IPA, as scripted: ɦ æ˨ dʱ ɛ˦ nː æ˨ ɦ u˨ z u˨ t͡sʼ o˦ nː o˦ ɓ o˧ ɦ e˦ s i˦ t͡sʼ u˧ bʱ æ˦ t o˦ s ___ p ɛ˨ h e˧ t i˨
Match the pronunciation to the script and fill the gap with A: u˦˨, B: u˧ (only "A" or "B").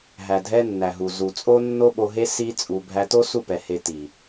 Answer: A